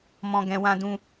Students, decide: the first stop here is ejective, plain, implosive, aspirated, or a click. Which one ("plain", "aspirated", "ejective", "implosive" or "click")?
plain